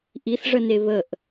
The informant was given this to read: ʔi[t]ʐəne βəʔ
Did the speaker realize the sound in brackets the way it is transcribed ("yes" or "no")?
no